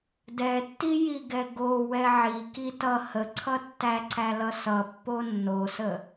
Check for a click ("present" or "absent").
present